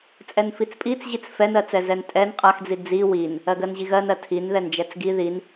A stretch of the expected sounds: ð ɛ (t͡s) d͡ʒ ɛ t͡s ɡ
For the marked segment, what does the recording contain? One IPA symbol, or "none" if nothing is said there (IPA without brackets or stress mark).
n